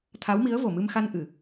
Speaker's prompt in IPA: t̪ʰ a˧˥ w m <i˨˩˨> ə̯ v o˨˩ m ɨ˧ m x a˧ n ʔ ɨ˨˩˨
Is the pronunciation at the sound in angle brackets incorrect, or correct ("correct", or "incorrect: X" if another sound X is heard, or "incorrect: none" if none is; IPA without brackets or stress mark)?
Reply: incorrect: i˧˥